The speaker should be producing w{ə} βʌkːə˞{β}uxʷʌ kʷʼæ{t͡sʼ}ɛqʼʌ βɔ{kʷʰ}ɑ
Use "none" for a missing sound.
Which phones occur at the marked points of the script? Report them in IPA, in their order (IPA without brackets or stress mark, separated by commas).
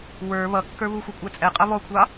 ə˞, β, t͡sʼ, kʷʰ